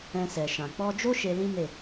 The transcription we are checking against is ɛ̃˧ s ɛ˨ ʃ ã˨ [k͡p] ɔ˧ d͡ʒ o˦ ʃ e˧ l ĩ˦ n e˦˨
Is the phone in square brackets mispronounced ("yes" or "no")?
no